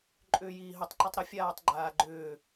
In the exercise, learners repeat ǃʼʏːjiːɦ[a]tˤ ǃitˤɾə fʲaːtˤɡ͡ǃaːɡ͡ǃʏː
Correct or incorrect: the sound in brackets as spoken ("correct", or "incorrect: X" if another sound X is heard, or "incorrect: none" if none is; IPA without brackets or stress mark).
incorrect: ə